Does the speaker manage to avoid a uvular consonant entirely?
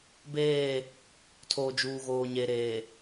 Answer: yes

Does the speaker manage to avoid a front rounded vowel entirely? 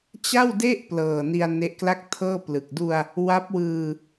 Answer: yes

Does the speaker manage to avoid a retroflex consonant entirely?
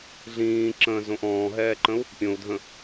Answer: yes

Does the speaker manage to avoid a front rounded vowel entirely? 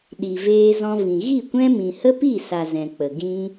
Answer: yes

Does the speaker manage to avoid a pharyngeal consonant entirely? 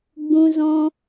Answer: yes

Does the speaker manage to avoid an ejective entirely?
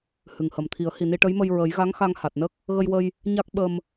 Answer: yes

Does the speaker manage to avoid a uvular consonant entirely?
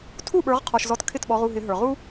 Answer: no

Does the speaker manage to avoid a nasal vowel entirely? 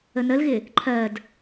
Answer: yes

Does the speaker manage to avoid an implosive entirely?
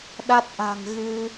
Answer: no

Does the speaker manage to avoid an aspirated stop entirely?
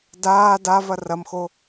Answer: yes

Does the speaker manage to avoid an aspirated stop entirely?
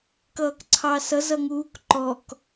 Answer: no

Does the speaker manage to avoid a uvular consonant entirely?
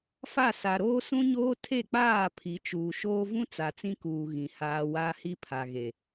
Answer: yes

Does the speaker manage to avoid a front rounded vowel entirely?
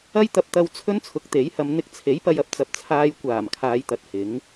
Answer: yes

